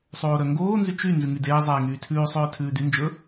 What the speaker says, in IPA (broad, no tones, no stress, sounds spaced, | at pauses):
sˤ oː ɾ œ ŋ ɡ oː n z y t͡ʃ y n z ʉ ŋ y d eː zˤ eː ŋ yː tʰ ʉː sˤ œː tʰ ʉː d y n d͡ʒ ɵ